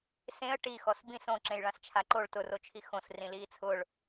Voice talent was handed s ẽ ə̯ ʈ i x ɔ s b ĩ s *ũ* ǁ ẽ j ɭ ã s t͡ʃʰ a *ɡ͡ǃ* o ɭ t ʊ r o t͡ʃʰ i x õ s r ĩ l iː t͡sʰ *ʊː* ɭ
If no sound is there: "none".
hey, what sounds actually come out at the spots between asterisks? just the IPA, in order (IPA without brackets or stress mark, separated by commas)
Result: õ, ǃ, ʊː